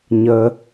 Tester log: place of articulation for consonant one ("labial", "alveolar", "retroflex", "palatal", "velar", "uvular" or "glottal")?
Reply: palatal